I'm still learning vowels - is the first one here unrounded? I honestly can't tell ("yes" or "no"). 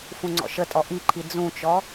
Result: no